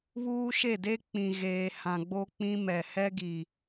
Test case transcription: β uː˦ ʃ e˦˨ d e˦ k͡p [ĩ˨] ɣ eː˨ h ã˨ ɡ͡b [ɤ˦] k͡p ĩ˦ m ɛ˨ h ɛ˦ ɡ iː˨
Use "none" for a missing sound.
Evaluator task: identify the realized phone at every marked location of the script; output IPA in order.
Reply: ĩ˨, o˦

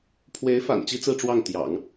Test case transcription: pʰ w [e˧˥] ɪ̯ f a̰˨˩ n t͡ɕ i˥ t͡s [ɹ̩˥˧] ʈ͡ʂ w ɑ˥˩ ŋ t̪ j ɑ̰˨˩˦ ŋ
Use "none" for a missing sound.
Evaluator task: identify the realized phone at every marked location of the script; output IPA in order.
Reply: e˧˥, ɹ̩˥˧

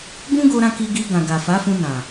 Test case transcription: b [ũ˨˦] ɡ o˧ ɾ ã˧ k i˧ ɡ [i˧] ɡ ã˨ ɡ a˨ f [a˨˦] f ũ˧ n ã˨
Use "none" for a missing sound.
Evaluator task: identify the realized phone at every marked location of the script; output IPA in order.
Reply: ũ˦, i˧, a˨˦

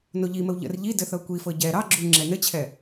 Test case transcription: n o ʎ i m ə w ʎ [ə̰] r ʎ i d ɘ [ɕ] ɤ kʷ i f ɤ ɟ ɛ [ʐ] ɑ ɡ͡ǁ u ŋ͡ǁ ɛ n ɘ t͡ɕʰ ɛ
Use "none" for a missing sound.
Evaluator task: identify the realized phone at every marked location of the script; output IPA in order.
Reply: ə̰, θ, ɾ

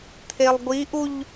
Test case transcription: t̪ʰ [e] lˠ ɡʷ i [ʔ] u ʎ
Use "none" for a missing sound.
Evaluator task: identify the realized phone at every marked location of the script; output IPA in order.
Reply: e, ʔ

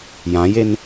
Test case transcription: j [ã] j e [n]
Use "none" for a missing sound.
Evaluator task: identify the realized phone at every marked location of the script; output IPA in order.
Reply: ã, n

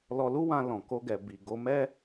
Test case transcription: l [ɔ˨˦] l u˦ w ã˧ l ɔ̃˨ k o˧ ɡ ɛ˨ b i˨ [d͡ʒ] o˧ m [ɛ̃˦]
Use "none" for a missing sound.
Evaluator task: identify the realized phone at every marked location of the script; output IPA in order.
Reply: ɔ˧, ɡ, ɛ˦

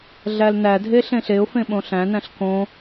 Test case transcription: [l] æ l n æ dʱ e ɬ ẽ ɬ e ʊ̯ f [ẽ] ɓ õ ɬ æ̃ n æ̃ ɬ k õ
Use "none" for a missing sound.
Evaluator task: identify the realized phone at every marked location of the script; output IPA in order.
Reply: ɮ, ẽ

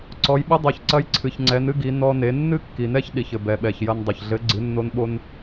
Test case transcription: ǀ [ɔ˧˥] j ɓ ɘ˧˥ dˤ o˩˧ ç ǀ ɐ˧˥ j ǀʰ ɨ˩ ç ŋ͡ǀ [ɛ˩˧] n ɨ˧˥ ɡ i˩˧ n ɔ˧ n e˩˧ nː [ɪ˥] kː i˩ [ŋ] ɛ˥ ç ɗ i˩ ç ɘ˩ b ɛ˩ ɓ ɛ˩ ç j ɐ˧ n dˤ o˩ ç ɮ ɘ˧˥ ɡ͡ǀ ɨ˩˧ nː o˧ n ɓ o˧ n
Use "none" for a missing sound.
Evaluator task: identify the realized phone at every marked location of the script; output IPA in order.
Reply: ɔ˩˧, ɛ˩˧, ɨ˥, n

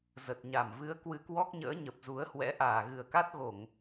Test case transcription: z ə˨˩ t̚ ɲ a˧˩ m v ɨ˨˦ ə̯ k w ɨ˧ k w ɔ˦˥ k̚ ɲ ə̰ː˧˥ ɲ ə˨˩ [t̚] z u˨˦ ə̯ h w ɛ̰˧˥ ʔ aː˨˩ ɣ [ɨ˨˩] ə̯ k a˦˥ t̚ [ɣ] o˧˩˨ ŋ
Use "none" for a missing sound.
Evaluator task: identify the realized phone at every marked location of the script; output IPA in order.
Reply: p̚, ɨ˧˩, ɣ

